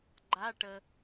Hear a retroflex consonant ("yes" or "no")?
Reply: yes